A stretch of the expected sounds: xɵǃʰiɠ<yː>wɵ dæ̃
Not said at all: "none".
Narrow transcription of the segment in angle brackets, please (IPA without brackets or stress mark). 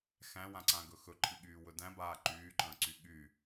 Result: yː